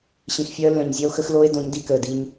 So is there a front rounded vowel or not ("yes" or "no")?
yes